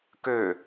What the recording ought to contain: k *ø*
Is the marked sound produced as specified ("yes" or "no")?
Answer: yes